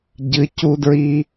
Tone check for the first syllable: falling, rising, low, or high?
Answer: rising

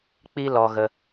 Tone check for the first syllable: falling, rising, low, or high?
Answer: high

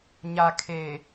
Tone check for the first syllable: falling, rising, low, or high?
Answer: low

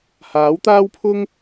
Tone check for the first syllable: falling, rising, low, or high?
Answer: rising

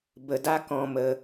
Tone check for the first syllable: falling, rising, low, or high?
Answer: low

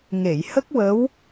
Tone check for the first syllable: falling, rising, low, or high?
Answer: low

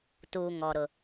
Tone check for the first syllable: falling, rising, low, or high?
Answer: low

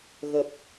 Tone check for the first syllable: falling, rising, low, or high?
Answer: low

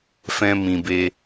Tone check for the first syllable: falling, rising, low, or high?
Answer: high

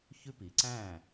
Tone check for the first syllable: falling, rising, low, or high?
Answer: high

